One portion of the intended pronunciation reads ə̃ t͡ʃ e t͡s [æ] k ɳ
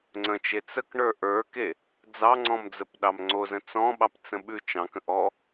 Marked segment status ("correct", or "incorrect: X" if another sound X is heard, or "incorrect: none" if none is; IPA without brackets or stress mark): incorrect: ə